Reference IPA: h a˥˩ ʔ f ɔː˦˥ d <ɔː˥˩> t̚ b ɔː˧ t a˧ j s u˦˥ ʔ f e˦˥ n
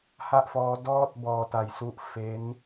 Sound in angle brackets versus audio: correct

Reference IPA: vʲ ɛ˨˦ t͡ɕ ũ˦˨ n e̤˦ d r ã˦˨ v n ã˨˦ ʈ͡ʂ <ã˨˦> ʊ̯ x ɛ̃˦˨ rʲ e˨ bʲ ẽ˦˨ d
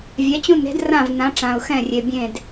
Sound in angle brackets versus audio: incorrect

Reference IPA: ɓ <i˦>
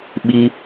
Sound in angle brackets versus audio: correct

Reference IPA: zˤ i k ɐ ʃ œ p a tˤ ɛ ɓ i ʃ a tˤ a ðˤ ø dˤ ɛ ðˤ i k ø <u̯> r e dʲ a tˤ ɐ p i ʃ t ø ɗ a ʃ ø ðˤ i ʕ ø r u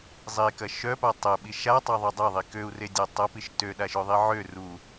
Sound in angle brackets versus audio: correct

